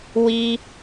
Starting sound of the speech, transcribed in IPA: w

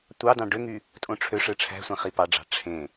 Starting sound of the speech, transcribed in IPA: tʷ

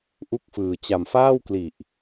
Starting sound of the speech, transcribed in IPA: ʔ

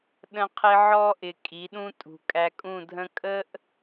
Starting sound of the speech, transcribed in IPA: ɗ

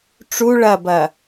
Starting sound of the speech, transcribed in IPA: ʈ͡ʂ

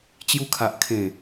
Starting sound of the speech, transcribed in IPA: t͡ɕ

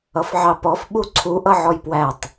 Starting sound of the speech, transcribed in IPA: ʌ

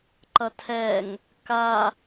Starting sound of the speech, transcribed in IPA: ǃ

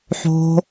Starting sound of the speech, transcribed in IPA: ħ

